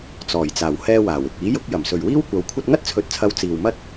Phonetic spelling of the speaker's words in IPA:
t͡sɔː˨˩jt͡saː˨˩whɛː˧ waː˨˩wɪ˨k̚ iː˨˥jʊ˨˥k̚jɐ˨˩msɵ˨ɥ wiː˥wkʷɐ˨˧w kʷʰɐ˧t̚ŋɐ˥t̚t͡sʰɵ˨t̚t͡sʰɐ˨˧w t͡siː˨wmɐ˥t̚

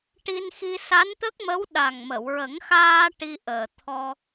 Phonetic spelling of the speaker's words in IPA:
ʈi˧nxi˧ sa˧˥nt̪ə˦˥k̚mə˧˥w ɗa˨˩ŋmə˨˩˨wɹə˨˩˦ŋ xaː˧ ʈi˧ʔəː˨˩t̪ʰɔ˧

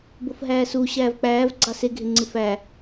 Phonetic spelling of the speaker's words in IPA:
bofɦæːsu ɕæːvk͡pæːv ɡ͡ǀɑse ɡʱeŋ͡ǀɯfæ

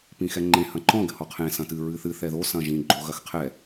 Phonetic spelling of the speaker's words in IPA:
pĩxɛŋ͡ǃẽ hɐ̃ǃɔ̃ ɡɘhɔqʰẽ sɐ̃tɨ ɹɨθɨ θɛðo sɐ̃ʒĩ ɡ͡ǃoɣɐxqʰɛ

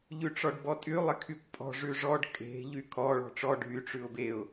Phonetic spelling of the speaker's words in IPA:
ʎʉʈ͡ʂɔɖbɔtʼy lˠɪkʰykʷpʼɔ̤ ʐʉʐɔɖ kʼe̤ ʎykʰɔ ɭɔ̤ʈ͡ʂɔ ɖʱy ʈ͡ʂʉʊ̯beʊ̯

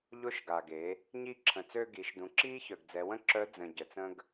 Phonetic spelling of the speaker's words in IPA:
ʎo˧˥ʃɡa˩ɡe˩˧ | ɲi˧ǁʰə̃˩t͡sø˧ɡi˩˧ʃ dũ˩˧ǁiː˥çœ˩ɡ d͡zɛ˩˧wə̃˥ ǁœ˧˥ d͡zə̃˩ ɟə˩t͡sə̃˥ɡ

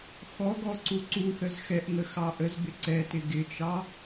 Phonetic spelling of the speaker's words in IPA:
xɔɡɔ ǀuǀuθəz xɛʔŋə xɑʔəzbɪ ǀɛtɪ ɡɪt͡ʃɑ

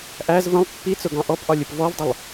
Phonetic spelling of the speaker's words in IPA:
ʔæz və̃lˠ pːit͡sʊɡɑ̃ ʔɔpʔɒlʲʊp vɔvdˤəlˠ

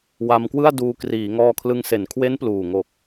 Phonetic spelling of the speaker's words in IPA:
wa˧mkwɯ˥˩a̯duː˧ kriː˩˦ŋɔː˧kʰlɯ˧ŋ se˩˦nkʰwe˦˥n pluː˨˩ŋo˨˩k̚

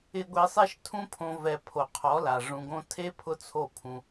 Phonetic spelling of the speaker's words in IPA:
ɪ˧ɡʷe˧sˤe˦ʃ tʰũ˧pʰõ˨vɛ˨ pʰo˨qʰɔ˨˦la˨ ʐũ˨ɡõ˧tʰe˦ pʰʊ˦t͡sʰo˦˨pʰũ˧

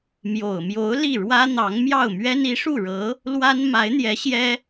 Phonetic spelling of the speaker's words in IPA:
mjo˨˩ʊ̯mjo˧˥ʊ̯ li˥˩ɻwä˥n̪ɑ˧˥ŋ mjɑ˥˩ʊ̯mɥɛ˥n i˧˥ʂu˥˩ɻɤ˧˥ | lwa˥n ma˧˥ɪ̯n̪jɛ˧˥ ɕjɛ˥

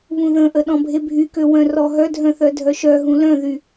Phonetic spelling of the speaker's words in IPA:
βũðə̃ʔə ɗɔ̃bʱebʱykø wœ̃rɔɦœdʱœ̃ θœdʱœʃœɦũ lœ̃ðy

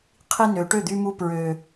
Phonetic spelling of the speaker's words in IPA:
qʰi˧ nø˩ʈø˥˩d̪y˧mu˧ pɹø˩

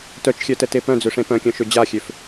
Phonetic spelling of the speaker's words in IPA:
tœt͡ʃxʲœtɛte pœ̃d͡zøʂẽ pœ̃kʲœ̃ʃø d͡ʑaxʲøf

